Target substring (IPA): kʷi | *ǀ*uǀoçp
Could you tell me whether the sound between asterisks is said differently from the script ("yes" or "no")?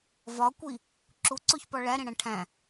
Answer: yes